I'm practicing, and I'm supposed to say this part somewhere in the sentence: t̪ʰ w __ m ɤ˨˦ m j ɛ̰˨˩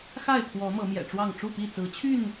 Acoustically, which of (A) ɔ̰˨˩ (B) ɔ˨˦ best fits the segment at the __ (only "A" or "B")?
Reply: B